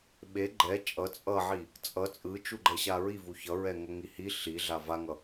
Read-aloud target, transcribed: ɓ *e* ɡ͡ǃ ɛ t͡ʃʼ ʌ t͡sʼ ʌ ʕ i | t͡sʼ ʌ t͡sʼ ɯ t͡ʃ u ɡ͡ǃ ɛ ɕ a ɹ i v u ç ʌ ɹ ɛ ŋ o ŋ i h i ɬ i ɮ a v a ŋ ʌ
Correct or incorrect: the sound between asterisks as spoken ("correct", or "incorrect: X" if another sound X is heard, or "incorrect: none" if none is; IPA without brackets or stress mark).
correct